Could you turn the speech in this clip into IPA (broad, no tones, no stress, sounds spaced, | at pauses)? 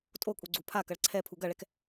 tʼ o kʼ u ɡ͡ǀ u pʰ a k ɐ ɭ ǀʰ ɛ pʰ u ɡ ɐ ɭ ɛ k